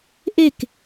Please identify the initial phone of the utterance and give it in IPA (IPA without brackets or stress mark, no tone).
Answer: ʔ